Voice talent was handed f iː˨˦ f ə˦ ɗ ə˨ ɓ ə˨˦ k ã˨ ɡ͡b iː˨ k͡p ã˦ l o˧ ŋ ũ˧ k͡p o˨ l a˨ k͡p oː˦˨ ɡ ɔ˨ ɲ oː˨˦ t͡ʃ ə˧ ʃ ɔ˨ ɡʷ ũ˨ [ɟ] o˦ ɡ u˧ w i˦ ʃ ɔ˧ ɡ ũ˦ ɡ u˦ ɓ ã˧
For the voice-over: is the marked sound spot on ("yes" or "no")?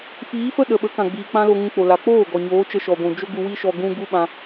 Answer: no